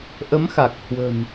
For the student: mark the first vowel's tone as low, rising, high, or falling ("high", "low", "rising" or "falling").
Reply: rising